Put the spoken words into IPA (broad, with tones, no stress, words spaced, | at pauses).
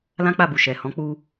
lã˦k͡pa˦˨bu˨ ʃɛ˨hɔ̃˨˦ k͡pu˧